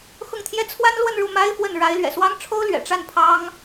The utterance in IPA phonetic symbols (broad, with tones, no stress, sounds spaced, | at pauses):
x ʊ˥˩ ŋ t̪ʰ j ɛ˥ t͡sʰ w a˥ n l w ə˥˧ n ɻ u˥˩ m a˥ ɪ̯ f w ə˥˩ n ɻ a˧˥ ɪ̯ l ɥ ɛ̰˨˩ s w ɑ˥ ŋ ʈ͡ʂʰ o˥ ʊ̯ l ɥ ɛ̰˨˩ ʈ͡ʂ a˥˩ n pʰ ɑ˥ ŋ